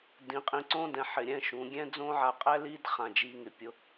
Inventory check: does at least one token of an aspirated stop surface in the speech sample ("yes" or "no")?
no